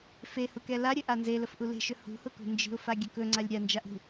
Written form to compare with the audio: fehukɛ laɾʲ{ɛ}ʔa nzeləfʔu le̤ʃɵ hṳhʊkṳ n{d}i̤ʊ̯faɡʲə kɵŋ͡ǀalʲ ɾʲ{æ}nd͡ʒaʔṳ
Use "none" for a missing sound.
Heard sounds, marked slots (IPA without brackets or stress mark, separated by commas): ɘ, d͡ʒ, a